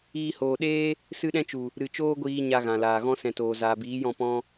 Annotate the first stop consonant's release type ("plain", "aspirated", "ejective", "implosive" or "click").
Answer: implosive